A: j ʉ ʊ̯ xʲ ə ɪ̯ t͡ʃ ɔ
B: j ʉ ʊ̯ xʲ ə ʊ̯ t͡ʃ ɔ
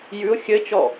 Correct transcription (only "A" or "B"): A